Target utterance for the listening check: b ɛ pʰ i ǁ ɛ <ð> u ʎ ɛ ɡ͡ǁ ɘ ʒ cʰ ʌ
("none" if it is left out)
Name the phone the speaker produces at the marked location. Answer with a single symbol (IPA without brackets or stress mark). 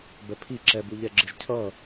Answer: b